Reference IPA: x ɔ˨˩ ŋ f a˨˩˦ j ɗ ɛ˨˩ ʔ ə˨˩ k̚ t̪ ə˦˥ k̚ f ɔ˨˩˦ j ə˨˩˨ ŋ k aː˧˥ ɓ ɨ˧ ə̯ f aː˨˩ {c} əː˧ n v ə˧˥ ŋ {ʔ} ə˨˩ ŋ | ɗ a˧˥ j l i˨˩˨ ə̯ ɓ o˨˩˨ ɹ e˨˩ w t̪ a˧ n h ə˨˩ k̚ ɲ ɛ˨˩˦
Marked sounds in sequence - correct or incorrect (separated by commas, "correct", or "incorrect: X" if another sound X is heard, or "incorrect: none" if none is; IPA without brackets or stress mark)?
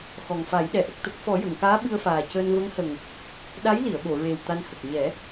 correct, incorrect: h